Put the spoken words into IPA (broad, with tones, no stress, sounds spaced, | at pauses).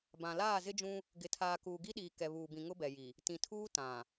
b ã˨ l aː˦˨ z ɪ˦ d͡ʒ ũ˦ | ɡ ɪ˨ tʰ aː˨ k uː˨ ɡ i˦ ɗ iː˨ k ɛ˨ β uː˨ b ĩ˨ ŋ ʊ˦ b ɛ˨ j i˨ | t ĩ˨ tʰ uː˦ t ã˨